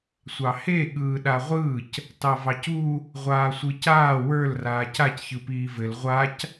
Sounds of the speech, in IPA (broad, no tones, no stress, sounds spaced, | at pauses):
sʷ ɑ h e ɠ ɯː ɗ a ʁʷ ɯː c | t ɑ v ɑ c u | ʁʷ aː sʷ ɯ c aː w ə˞ l r aː c a c ç ɯ p iː v ɘ l ʁʷ a c